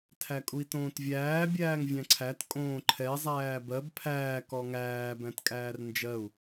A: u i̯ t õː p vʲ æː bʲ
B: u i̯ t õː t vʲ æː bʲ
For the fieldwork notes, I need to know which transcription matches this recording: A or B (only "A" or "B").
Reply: B